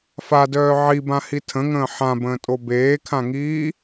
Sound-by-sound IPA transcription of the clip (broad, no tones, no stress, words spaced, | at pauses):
fadœː ʕibãhi tʰə̃ŋə̃ː ħãbə̃ːtʼo beːkʰãŋiː